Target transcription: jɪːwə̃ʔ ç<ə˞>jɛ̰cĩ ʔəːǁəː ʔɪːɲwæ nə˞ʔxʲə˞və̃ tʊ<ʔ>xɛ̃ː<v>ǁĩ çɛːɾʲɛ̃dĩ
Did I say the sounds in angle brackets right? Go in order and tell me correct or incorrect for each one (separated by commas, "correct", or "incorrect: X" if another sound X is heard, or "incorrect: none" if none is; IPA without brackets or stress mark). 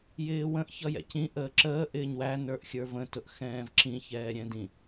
incorrect: ʌ, correct, correct